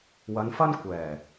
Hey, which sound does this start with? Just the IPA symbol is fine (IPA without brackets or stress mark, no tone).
w